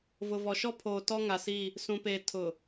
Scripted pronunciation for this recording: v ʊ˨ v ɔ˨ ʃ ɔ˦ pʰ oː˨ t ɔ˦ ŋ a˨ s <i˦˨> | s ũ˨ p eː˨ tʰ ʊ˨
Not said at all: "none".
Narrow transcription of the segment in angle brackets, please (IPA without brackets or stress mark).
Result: i˦˨